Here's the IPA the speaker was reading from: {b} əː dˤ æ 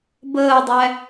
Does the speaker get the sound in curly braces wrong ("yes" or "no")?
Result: no